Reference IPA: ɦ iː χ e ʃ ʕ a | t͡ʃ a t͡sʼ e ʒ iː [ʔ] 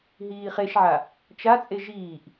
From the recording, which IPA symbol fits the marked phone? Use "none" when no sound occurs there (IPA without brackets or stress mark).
ʔ